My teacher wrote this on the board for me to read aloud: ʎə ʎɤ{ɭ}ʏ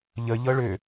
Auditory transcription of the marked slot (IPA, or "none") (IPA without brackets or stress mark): ɭ